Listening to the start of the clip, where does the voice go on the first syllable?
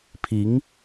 rising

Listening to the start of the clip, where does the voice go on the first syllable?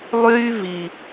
high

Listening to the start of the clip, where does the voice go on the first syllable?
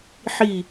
falling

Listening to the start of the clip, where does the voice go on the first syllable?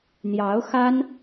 rising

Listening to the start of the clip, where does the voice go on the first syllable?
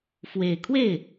low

